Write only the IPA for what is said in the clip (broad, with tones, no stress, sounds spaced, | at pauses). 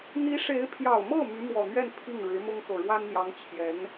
n̪ i˧˥ ʂ e˧˥ ɪ̯ pʰ j ɑ˨˩ ʊ̯ m ɤ˥˩ m y˧˥ m w ɔ˨˩ n̪ ɥ ɛ˥˧ n pʰ i˥˩ ŋ ɻ ɻ̩˧˥ m ʊ˥ ŋ k ɤ˨˩ ɻ w a˥ n n̪ j ɑ˧˥ ŋ t͡ɕʰ j ɛ˧˥ n